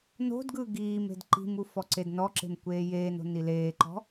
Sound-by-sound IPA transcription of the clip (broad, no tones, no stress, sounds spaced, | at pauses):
n o̤ d ɡ ɯ ɡ iː m e̤ d ǃ i̤ m u f ɔ ǀ e d n ɔ ǁ e̤ m kʷ eː j eː n o̤ n i l eː ǃ ɔ̤